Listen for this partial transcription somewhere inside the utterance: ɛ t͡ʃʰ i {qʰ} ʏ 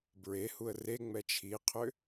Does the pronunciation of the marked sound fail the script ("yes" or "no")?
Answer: no